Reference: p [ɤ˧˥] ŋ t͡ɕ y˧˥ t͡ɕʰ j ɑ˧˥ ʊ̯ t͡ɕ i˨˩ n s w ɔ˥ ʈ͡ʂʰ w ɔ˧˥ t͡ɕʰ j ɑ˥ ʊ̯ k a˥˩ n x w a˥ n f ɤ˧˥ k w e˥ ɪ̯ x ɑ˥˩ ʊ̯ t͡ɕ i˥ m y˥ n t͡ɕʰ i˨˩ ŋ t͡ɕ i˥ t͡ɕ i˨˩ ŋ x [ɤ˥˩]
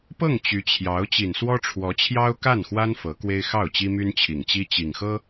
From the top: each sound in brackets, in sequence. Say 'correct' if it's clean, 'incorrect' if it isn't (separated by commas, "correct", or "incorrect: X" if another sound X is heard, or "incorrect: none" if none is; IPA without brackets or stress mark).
incorrect: ɤ˥˩, incorrect: ɤ˥